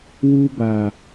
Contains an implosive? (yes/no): no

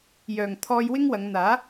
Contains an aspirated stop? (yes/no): yes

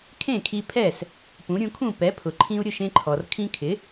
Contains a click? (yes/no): yes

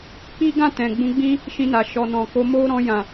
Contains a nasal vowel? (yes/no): yes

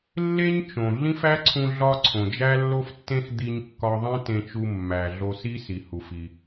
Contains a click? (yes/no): yes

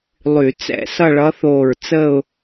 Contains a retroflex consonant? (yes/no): yes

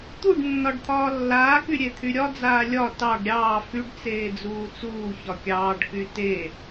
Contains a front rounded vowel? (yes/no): yes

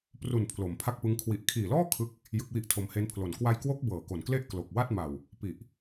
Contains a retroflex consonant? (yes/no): no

